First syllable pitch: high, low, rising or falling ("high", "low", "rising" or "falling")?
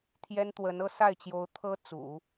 high